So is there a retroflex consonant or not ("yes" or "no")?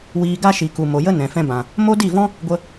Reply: no